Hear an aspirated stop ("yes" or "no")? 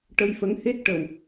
no